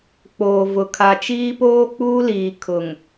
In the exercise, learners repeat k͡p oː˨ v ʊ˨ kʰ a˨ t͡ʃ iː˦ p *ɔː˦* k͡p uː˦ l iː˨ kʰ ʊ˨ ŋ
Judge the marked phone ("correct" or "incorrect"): incorrect